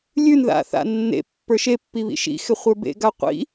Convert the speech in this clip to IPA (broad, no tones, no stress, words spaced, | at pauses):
lʲʉnða̰θa̰ nːḛpːə˞ ʃepːiβḭ ʃḭxɪχʷə˞ bḛɡa qʷḭ